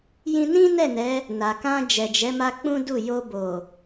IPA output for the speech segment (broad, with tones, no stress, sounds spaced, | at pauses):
j ĩ˧ n ĩ˦ n ɛ˦˨ n ɛ˨˦ | n a˨ k ã˧ d͡ʒ ɛ˨ d͡ʒ ɛ˨˦ m a˦ k͡p ũ˦ d u˦˨ j o˧ b o˨